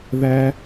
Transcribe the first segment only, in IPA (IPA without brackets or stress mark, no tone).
ð